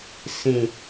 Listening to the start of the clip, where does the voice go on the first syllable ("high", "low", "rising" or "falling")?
low